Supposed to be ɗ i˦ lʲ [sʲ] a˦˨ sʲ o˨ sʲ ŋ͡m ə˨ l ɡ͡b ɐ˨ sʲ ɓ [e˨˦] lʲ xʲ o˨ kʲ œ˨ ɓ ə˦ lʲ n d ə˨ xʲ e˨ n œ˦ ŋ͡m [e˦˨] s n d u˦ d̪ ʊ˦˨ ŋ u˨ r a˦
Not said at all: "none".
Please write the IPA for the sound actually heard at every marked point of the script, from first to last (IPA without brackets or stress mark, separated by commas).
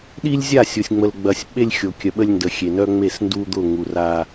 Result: zʲ, e˦, e˦˨